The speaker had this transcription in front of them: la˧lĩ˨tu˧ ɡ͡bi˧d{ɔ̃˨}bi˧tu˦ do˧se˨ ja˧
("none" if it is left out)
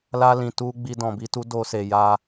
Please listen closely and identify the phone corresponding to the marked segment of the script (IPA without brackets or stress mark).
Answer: ɔ̃˨